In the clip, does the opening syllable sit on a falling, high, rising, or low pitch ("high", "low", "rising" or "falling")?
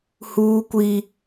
high